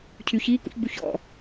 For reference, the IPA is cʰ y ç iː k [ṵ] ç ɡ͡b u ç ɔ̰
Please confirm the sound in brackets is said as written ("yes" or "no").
yes